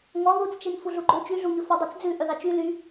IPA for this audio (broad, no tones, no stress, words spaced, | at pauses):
ŋɔ ðut͡st͡ʃen fuɮuɡ͡ǃɵ t͡ʃyɮuɲɵ fɔdˤɑt͡sd͡zʉ ʔœðɑt͡ʃy ly